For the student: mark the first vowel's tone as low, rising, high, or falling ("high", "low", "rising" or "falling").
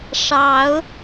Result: rising